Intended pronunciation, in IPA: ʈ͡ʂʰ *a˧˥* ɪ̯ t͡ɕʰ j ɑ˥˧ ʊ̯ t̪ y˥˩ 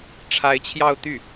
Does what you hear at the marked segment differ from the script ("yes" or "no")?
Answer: no